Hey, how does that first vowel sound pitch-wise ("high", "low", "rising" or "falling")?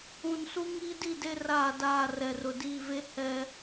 low